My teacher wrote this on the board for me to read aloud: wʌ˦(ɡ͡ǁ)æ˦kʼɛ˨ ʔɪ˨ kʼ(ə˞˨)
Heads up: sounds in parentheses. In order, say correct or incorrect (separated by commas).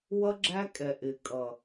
correct, incorrect